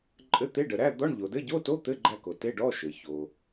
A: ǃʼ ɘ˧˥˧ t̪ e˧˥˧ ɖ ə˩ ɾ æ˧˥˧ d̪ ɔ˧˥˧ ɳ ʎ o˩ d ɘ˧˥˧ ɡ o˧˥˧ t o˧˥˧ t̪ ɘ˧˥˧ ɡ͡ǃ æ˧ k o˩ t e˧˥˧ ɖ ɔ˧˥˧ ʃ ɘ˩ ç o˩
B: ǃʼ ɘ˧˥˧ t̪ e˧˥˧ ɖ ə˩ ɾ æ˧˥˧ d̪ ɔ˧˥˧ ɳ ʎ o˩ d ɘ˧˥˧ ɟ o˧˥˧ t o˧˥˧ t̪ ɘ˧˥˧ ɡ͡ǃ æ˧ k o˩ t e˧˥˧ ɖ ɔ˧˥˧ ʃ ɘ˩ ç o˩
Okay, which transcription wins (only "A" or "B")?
B